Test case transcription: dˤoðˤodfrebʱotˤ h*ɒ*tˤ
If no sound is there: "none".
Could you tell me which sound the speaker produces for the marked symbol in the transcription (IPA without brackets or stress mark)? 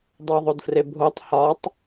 ɒ